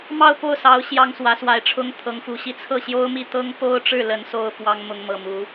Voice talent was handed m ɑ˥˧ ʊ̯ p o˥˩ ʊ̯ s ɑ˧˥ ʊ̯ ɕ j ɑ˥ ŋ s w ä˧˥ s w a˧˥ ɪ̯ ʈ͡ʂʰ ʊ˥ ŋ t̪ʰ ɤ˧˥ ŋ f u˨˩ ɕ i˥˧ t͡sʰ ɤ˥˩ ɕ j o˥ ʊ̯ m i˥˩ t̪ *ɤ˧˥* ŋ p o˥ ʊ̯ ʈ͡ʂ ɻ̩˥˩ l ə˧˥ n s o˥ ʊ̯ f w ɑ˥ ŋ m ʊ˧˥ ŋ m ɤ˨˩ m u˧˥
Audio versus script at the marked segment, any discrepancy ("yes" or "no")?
yes